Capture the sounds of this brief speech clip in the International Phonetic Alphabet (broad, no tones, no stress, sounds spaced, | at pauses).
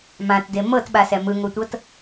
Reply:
m ã t d e m ɤ t ɓ a s ɛ m ɯ ŋ o tʷ ɤ t